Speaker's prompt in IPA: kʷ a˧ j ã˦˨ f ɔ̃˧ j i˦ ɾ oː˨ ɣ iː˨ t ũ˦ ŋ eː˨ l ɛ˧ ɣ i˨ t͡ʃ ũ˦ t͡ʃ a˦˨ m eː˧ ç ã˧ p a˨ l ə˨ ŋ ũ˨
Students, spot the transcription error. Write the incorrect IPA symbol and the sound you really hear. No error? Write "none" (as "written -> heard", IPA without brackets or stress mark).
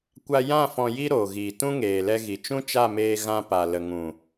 ç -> ɣ